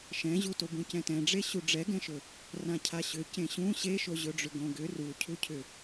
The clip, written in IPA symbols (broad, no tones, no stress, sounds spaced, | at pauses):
ʃ ɛ̃ ʑ u t o b ũ c ɛ̃ t ɛ̃ ɖ͡ʐ e ɕ u ɖ͡ʐ ɛ ɡ ɛ̃ ʃ ɵ | r ã cʰ a ɕ ʏ c ẽ ɕ ũ ɕ e ʃ o ʑ ɵ ɖ͡ʐ ʏ ɡ õ ɡ ʏ r u cʰ u cʰ ʏ